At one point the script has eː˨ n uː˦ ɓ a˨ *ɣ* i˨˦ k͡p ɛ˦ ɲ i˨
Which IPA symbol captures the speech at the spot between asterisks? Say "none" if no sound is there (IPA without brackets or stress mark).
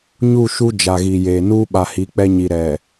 h